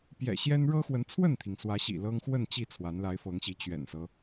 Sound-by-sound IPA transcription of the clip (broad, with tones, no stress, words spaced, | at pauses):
pjɛ̰˨˩ɕjɛ˦n ɻɤ˦xwə˨˦nt͡sʰwə˥˨nt̪ʰi˩ŋ swä˨˦ɕḭ˨˩ lɤ˦ŋxwə˥˨n t͡ɕi˥˨ t͡sʰwa˨˦nla˨˦ɪ̯fɤ˨˦ŋɕi˨˦ t͡ɕɥɛ̰˨˩nsɤ˦